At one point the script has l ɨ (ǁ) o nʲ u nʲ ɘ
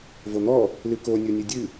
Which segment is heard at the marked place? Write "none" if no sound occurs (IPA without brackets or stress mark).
k